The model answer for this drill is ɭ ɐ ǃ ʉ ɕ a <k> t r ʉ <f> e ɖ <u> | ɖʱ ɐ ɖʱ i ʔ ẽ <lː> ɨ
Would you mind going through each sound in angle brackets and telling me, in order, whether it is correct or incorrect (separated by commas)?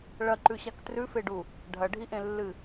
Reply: correct, correct, correct, correct